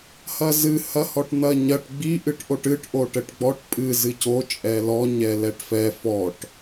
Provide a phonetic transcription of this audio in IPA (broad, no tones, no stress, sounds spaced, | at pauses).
h ɐ z ɨ h ɐ h ɔ ʈ n̪ ɐ ɲ ɐ ʈ ɡ͡b i ʔ ɨ ʈ ʔ o ʈ ɨ ʈ ʔ o ʈ ɘ ʈ ɡ͡b ɔ ʈ pʼ ɨ z ɨ c o t͡ʃʼ ɛ l ɔ ɲ ɛ l ɛ ʈ f ɛ f ɔ ʈ